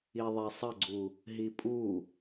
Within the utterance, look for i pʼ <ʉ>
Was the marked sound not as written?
yes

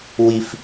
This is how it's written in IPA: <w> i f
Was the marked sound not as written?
no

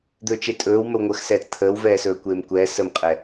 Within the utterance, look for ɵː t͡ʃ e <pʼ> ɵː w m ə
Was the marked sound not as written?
yes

